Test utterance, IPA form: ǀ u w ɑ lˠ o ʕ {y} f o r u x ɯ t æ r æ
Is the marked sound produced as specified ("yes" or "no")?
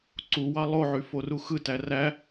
yes